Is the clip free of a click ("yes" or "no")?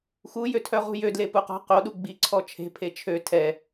no